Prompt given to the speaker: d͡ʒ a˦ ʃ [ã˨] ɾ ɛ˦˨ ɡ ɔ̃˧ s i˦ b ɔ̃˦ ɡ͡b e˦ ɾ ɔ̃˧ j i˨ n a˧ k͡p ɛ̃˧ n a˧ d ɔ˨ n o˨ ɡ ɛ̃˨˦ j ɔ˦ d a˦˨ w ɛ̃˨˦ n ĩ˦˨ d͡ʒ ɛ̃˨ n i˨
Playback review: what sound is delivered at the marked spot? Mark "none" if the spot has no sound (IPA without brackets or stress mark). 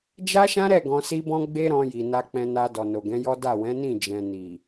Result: ã˦